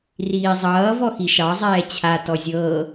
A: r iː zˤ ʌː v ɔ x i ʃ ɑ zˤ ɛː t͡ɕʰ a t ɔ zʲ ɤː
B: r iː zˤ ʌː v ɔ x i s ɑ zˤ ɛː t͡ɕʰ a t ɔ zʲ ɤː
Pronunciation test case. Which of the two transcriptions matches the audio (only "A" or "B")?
A